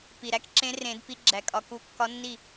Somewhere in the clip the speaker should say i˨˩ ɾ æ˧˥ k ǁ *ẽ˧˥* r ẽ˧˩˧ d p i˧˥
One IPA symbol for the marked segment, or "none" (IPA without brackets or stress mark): ẽ˧˥